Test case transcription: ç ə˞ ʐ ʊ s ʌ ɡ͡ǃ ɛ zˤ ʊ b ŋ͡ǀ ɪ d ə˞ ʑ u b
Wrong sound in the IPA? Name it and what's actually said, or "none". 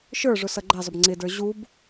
ç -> ʃ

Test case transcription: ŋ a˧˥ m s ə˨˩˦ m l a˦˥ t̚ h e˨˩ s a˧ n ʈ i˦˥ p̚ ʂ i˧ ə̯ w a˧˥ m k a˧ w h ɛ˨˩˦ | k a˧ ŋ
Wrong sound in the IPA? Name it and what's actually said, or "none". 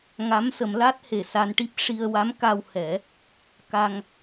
none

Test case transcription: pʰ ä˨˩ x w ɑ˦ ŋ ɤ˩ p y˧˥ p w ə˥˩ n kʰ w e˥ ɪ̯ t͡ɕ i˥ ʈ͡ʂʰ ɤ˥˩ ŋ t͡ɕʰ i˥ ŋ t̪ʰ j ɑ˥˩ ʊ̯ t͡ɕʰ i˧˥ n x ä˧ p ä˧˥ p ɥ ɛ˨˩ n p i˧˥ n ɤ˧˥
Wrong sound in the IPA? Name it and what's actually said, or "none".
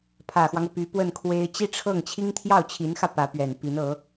none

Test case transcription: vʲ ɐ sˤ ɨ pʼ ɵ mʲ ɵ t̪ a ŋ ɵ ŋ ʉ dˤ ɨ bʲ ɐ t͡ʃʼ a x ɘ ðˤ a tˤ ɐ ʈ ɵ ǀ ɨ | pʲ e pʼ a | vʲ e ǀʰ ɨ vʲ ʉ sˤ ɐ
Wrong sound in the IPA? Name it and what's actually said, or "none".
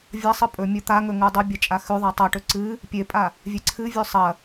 ɘ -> ʉ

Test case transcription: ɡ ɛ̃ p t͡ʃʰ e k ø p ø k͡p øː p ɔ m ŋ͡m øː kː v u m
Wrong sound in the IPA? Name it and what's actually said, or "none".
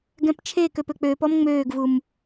kː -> ɡ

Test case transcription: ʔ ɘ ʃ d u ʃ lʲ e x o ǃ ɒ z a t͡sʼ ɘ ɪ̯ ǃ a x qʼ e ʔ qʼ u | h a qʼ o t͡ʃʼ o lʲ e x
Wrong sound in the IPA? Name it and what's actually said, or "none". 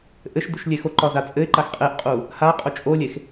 none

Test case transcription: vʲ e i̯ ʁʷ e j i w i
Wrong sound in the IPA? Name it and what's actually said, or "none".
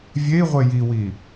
none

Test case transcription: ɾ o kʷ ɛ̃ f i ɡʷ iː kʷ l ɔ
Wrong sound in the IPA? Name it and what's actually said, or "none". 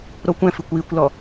ɡʷ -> kʷ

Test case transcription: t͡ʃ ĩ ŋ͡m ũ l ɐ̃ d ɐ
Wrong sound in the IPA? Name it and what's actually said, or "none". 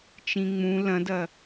none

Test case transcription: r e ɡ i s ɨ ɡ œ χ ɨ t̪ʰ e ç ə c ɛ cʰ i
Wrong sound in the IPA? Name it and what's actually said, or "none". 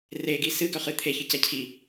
none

